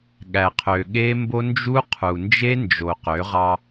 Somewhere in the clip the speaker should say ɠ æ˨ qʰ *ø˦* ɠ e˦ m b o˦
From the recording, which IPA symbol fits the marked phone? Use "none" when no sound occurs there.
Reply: ø˨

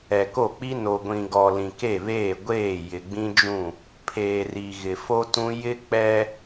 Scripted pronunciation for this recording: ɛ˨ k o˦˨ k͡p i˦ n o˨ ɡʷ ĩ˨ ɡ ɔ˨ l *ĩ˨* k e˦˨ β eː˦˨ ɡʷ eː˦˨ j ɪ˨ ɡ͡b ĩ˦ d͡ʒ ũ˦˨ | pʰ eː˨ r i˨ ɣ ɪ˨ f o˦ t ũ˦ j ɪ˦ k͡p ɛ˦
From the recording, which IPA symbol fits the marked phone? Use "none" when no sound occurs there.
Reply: ĩ˨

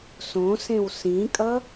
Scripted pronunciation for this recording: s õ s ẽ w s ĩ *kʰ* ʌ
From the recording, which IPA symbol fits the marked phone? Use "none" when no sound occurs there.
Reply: kʼ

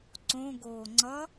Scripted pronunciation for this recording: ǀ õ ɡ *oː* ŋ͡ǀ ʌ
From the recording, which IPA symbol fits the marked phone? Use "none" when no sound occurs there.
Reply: oː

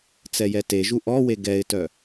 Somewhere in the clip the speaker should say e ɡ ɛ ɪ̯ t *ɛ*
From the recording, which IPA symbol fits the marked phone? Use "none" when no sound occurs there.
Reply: œ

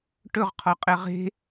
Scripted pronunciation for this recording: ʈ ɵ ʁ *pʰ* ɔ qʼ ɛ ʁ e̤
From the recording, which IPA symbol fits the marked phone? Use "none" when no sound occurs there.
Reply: qʰ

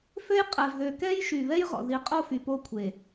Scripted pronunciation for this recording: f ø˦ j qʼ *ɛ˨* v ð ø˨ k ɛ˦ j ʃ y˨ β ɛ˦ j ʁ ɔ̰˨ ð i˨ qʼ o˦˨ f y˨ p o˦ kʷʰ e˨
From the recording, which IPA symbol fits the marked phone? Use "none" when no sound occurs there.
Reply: ɛ˨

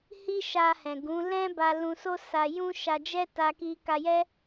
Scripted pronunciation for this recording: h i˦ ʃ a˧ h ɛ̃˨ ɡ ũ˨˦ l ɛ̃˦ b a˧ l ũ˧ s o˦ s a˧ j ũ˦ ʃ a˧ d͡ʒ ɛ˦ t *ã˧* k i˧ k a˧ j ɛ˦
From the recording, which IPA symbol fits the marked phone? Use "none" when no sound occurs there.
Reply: a˧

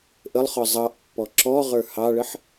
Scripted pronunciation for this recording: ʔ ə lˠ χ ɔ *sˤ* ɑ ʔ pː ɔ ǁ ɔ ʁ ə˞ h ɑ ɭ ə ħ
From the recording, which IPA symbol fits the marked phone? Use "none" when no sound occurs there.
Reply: zˤ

